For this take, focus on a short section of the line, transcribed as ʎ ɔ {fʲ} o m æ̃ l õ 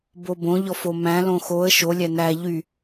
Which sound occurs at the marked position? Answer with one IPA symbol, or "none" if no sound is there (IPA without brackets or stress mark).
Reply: f